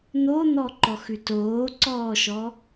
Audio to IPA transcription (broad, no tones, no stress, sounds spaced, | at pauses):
n̪ o n̪ ɔ ǃ ɔ x ʉ t oː ǀ ɔː ʃ ɔ